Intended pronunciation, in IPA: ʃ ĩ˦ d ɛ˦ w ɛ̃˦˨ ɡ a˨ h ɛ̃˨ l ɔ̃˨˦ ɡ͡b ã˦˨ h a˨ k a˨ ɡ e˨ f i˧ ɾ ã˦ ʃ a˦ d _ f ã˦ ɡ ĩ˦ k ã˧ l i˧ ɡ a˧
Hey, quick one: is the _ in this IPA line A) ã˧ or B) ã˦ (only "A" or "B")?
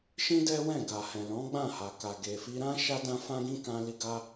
B